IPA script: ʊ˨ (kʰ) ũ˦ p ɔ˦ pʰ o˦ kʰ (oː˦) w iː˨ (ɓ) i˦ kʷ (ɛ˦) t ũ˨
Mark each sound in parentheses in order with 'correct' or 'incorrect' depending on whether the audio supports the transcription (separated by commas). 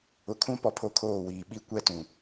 correct, incorrect, correct, correct